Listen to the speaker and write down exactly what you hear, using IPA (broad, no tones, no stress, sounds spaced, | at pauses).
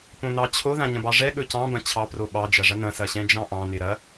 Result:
p õ n ɑ t͡ɕʰ o ð ã ɲ ɐ̃ b ɑ ʐ ɛ ɠ ɵ c ɑ̃ b ɐ̃ t͡ɕʰ ɑ p r o ɓ ɑ d͡ʒ ɐ ʐ ɐ n ɐ̃ s ɐ ɕ ɛ̃ d͡ʒ ɑ̃ ʔ ɑ̃ n ɪ ɾ ɐ